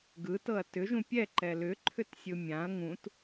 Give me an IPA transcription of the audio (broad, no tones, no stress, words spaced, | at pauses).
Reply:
ɡɯtɤɐ̯ tʏʒũ pʲɛǃɛ lʏǃʰʏtsʲɯ mʲãɐ̯ ŋũt